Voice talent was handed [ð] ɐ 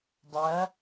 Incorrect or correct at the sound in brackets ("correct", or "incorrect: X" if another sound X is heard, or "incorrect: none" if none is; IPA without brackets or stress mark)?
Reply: incorrect: dˤ